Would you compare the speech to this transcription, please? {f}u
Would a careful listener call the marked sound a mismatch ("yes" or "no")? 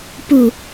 yes